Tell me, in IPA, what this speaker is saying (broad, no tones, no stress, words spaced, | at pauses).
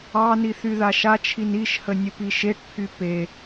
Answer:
ɑni θyðaʃat͡ʃʰin iʃhə nʲəpiʃeʈpʰy pe